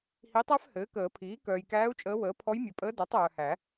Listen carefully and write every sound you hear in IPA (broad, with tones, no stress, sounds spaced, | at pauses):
h i˧˥ tˤ æ˥ f h ɘː˩˥ k əː˨˩˦ pʰ iː˩˥ k œː˨ j k æː˧˥ u̯ t͡ʃʼ əː˧˥ w əː˩˥ pʰ ɔ˧˥ j mʲ œ˨ pʼ əː˧˥ d æ˩˥ tˤ œː˨ h æ˨˩˦